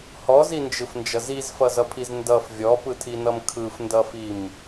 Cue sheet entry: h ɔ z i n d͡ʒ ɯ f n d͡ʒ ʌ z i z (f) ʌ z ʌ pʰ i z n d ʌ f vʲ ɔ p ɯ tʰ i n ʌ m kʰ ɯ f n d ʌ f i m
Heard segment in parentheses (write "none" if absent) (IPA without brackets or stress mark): f